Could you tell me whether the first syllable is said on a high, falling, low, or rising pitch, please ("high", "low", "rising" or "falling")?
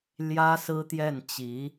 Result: high